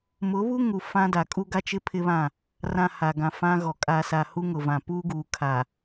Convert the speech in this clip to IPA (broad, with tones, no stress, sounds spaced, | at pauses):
m ʊ˨˦ β u˦ ŋ u˨ f ã˦ d a˨ kʼ u˦ ɡ a˦ t͡ʃ ɪ˦ pʰ ɪ˦ β ã˦˨ | r ã˨ h a˨ ɡ ã˨ f ã˦ ɣ ɔ˨ kʼ a˨ s a˨ h u˦ ŋ ʊ˨ v ã˨ p uː˦ ɡ uː˨ kʰ aː˨